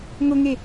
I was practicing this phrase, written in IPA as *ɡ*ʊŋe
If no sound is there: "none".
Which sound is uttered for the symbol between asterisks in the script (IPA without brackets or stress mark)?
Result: ŋ